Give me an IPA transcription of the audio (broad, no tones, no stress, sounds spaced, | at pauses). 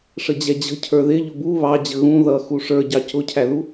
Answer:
ʂ ə d͡ʑ ɛ d͡ʑ ə̤ cʰ ə˞ ð ɪ ʎ ʊ b u β ɑ d͡ʑ ə ɣ ũ ð ʌ x u ʂ ə˞ ɟ ɑ c ʊ cʰ æ ð u